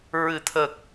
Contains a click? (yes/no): no